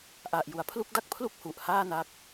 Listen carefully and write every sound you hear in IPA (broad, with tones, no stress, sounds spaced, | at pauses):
ʔ a˨˩ ʔ j u˩˦ a̯ pʰ l u˥˩ k̚ d a˥˩ k̚ pʰ l u˥˩ k̚ h u˨˩ ʔ h aː˥˩ n a˦˥ k̚